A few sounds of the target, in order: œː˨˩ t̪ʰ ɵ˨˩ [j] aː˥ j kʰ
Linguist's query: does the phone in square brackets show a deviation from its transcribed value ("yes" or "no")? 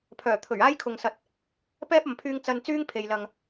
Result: yes